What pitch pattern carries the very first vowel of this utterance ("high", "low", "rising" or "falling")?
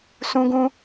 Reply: high